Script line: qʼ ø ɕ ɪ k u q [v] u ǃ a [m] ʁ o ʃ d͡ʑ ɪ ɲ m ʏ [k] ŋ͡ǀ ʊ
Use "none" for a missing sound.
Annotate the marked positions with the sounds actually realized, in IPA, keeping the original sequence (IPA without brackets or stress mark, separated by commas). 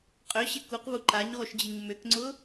v, ɲ, k